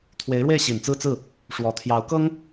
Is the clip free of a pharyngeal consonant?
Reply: yes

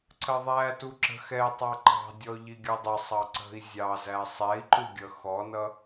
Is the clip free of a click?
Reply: no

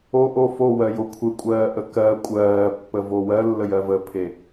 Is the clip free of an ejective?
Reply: no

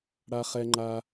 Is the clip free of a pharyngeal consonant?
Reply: yes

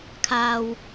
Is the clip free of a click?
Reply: yes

